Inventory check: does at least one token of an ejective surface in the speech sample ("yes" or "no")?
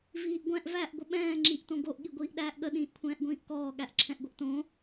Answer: no